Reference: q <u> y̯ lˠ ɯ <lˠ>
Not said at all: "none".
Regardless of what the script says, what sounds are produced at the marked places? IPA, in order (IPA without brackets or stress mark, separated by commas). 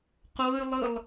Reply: o, lˠ